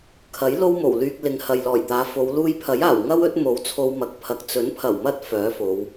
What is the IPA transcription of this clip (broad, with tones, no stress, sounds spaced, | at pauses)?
kʰ ɐ˨˥ j l o˥ w m o˨˩ w l yː˧ k̚ l ɪ˨ ŋ h ɐ˨ j l ɔː˨˩ j t̪ aː˨˧ f o˨˧ w l uː˧ j pʰ ɐ˨˥ j aː˨˩ w ŋ ɐ˥ w ɵ˨˥ t̚ m o˨˥ w t͡sʰ o˧ w m ɐ˨ k̚ pʰ ɐ˨ k̚ t͡s ɵ˨˥ n pʰ ɐ˨˩ w m ɐ˥ t̚ f œː˨˥ f o˨˧ w